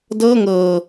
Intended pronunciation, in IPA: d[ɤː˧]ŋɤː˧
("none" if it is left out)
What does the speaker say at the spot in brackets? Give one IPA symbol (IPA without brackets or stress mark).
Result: ɤː˥˩